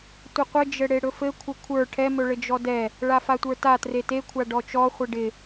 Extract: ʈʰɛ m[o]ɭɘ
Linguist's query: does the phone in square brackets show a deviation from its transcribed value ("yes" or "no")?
yes